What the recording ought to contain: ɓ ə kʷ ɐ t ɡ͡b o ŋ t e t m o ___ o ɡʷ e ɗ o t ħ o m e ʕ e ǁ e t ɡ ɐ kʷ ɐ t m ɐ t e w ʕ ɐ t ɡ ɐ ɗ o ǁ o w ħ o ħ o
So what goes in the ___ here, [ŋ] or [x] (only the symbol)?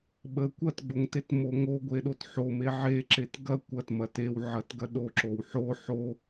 ŋ